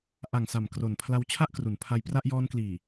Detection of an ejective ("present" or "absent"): absent